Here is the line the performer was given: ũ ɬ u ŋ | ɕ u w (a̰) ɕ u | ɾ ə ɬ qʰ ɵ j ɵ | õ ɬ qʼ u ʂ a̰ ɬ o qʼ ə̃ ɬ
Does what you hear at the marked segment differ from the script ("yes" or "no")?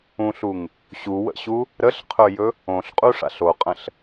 yes